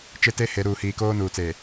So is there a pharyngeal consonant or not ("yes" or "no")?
no